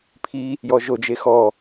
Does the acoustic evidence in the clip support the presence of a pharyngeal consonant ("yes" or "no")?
no